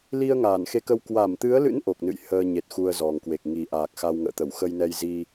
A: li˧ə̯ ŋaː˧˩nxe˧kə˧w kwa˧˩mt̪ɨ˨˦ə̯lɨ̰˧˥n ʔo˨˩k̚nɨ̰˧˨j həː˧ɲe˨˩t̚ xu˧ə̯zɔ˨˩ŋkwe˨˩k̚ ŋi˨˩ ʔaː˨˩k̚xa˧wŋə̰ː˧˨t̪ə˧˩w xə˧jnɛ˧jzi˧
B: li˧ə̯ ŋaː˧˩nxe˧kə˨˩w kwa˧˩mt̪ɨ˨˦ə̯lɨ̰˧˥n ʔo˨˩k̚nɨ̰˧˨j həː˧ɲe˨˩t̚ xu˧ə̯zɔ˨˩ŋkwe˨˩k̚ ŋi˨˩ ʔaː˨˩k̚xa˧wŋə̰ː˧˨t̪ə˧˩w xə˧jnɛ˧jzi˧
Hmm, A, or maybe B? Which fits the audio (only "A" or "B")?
A